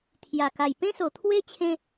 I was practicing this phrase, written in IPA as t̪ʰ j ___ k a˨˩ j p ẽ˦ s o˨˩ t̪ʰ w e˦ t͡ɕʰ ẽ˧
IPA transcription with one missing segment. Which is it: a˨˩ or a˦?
a˨˩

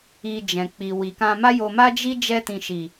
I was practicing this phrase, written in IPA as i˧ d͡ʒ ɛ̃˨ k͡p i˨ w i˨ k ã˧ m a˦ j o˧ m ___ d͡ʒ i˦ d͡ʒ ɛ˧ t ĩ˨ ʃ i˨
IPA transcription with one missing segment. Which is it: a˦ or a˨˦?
a˦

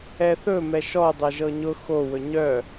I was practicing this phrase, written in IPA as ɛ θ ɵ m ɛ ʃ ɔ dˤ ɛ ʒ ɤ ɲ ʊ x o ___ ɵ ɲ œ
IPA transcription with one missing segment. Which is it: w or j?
w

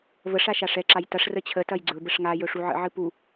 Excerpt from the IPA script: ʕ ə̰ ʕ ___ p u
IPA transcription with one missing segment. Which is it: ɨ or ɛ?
ɨ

